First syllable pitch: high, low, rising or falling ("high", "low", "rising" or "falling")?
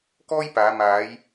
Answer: high